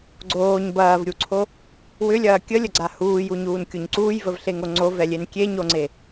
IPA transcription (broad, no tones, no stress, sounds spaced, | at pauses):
ɡ͡ǀ oː ɲ b ɐː v ɾʲ u ǀʰ o | w ʏ lʲ ɐː kʲ ə lʲ ə ɡ͡ǀ a h uː j u ɲ uː n kʲ o ɲ ǀ uː j v ə v ɬ e ŋ o ŋ͡ǀ o v ɛ lʲ e n kʲ e ɲ o ŋ͡ǀ e